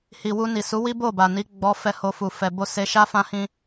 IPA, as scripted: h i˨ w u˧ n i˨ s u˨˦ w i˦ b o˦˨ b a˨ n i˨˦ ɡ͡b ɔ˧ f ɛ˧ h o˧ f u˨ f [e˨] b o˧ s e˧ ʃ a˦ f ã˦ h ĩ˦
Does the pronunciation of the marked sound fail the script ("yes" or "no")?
yes